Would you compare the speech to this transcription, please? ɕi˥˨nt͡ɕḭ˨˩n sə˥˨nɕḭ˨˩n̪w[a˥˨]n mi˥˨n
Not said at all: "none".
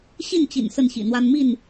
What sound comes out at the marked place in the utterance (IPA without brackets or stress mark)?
a˦